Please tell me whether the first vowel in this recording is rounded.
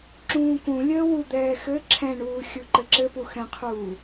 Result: yes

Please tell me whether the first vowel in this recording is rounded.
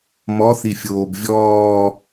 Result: yes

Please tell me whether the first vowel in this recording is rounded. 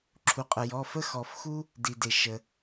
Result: yes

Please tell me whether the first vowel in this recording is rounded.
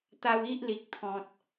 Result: no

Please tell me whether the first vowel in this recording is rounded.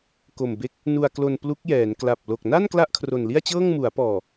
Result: yes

